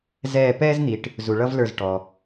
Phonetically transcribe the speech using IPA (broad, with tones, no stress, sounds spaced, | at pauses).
z ɛː˦˨ p ɛː˥ z n̪ i˨ ʈ | z u˨ ɭ ʌ˥ v l ə˞˦˨ z ʈ ɔ˨